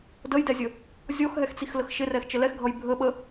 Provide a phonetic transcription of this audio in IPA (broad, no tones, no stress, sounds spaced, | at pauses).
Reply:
d ə j d ɛ zʲ ə | zʲ ɔ x ɦ ɛ x t͡s i x l ə x ʃ ɪ r ɛ x t͡ʃ ə l ɛ x ɡʱ ʌ j bʱ ə ɓ ə